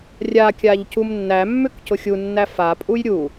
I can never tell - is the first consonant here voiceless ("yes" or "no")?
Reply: no